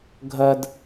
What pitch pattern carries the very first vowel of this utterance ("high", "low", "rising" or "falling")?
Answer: high